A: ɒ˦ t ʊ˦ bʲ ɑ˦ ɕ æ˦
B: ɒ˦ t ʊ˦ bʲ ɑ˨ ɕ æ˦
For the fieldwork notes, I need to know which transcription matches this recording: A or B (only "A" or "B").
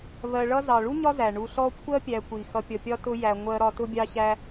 A